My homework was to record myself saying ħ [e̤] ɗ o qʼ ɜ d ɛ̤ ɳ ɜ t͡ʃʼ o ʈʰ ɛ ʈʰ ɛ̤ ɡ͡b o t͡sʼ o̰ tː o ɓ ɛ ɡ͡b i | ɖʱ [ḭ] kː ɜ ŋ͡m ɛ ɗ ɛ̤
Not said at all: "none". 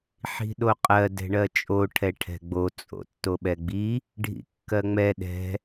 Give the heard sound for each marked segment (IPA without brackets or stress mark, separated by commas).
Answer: i̤, ḭ